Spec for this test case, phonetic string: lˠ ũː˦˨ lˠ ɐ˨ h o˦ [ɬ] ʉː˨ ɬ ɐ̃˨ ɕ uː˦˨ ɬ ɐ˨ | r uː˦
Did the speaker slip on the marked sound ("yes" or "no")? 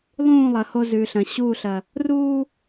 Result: yes